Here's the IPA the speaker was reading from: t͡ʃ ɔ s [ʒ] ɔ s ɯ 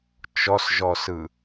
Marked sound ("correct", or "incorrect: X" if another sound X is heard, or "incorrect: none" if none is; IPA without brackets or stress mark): correct